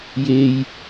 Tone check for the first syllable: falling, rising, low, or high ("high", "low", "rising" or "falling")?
low